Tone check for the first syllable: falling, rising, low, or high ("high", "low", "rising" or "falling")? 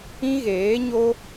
high